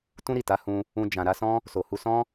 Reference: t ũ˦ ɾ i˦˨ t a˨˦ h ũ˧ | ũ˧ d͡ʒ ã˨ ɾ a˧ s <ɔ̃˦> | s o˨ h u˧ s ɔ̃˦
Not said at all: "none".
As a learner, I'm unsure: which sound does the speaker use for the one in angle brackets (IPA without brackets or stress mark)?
ɔ̃˦